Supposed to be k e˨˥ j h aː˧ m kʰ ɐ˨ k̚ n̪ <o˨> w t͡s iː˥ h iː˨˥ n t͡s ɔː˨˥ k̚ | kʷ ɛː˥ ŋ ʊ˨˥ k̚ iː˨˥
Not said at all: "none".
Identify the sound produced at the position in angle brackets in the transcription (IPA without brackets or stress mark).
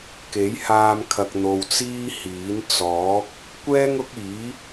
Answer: o˨